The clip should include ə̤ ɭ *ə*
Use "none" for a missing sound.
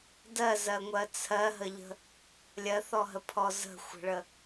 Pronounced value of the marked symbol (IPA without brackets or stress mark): ə